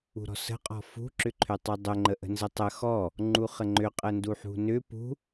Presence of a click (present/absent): present